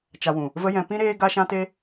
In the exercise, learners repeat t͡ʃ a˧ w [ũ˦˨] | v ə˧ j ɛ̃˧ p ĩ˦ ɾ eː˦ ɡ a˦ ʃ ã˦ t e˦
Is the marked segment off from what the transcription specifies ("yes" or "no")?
yes